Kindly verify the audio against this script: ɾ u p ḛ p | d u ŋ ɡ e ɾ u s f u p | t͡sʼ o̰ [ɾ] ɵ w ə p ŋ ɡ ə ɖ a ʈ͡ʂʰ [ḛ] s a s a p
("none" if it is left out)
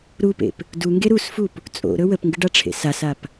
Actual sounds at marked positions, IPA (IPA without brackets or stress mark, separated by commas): ɾ, ḛ